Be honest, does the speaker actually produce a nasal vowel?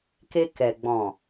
yes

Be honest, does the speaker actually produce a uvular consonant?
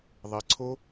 no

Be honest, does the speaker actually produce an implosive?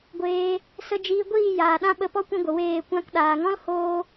yes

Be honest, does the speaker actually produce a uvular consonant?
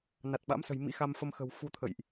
no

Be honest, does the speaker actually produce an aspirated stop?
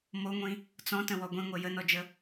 no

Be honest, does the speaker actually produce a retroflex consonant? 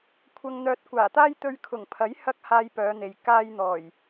no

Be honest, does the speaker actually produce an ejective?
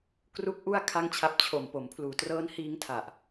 no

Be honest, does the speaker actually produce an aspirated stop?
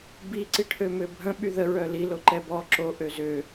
yes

